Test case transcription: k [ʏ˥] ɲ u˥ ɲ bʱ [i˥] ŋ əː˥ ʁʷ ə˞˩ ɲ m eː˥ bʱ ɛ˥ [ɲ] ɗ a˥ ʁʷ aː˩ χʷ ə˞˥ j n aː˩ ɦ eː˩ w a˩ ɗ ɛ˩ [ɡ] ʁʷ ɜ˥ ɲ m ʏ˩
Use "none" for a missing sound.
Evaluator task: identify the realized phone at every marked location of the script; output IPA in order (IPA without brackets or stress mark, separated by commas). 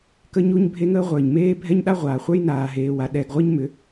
ə˥, e˥, ɲ, ɡ